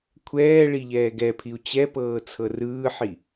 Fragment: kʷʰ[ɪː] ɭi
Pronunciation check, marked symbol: incorrect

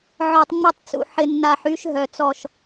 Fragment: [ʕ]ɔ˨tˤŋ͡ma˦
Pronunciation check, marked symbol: correct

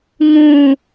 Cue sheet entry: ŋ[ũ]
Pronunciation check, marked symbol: correct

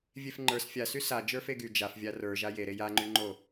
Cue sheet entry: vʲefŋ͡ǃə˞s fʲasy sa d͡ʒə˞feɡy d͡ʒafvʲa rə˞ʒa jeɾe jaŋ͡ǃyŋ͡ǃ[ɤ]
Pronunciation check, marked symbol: incorrect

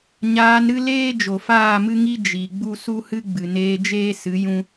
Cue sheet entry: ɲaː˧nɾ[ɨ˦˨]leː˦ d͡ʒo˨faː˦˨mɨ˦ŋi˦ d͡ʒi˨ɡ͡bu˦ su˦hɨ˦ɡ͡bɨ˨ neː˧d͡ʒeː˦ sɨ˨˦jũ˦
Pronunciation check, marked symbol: incorrect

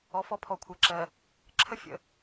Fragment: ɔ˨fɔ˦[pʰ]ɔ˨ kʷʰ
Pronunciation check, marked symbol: correct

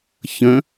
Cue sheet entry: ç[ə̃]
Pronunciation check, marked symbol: correct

